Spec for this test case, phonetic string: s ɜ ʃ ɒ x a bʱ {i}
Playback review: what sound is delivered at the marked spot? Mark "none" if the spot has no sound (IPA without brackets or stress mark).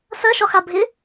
ɪ